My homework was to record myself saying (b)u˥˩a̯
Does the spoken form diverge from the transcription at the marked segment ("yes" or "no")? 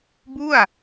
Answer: no